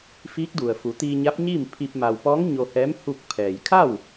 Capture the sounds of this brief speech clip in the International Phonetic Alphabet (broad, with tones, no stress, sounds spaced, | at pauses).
f iː˧˥ k̚ d u˩ ə̯ f u˩˧ t̪ iː˧ ɲ a˧˥ p̚ ɲ iː˥˨ m pʰ i˧ p̚ m a˩ w p ɔː˧˥ ŋ ɲ o˧ h ɛː˧˥ m h u˥˨ k̚ pʰ ɛː˩ j kʰ a˥˨ w